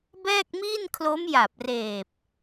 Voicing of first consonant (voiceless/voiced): voiced